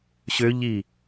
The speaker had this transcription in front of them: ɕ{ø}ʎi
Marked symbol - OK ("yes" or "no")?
yes